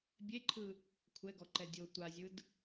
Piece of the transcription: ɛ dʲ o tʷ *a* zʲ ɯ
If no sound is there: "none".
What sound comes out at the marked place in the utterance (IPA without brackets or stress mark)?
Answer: a